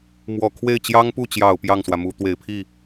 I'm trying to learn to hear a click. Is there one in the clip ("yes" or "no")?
no